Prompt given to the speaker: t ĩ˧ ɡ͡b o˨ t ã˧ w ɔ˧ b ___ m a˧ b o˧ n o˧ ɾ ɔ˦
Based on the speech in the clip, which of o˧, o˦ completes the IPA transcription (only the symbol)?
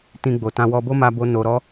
o˦